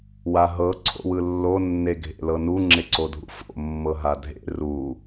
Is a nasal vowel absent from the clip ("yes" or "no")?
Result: yes